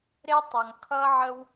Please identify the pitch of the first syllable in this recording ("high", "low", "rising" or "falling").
high